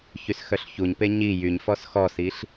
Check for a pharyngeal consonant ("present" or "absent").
absent